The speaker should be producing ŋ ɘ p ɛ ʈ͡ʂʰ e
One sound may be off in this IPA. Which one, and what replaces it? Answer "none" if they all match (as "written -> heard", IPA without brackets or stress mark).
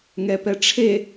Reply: ɘ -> ɛ